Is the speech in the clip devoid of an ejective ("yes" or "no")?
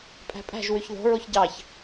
no